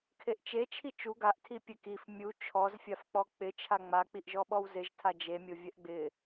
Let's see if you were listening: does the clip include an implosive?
yes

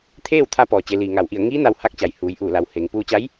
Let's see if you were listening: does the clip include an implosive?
no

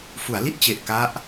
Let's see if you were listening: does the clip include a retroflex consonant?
no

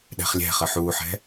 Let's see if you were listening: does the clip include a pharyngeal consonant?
yes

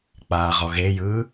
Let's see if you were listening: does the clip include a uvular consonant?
yes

